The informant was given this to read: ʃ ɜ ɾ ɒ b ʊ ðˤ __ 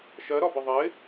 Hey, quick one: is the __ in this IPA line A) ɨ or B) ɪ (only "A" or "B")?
B